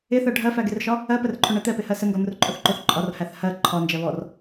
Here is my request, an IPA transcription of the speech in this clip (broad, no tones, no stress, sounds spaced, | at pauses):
ɪ θ ɜ ɖʱ ɜ f æ ɡ ɪ r ʃ ɒ | ɜ p ə r ǃʰ ʊ ɳ ɛ t̪ ɛ p ɪ h ɜ s ə ŋ ɡ ɔ n̪ ʊ r ǃʼ ʊ θ ǃ ʊ θ ǃʼ ɒ r h æ θ h ɜ ǃʰ ɒ n d͡ʒ ɜ β ɔ r